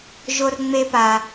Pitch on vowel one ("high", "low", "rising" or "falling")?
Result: high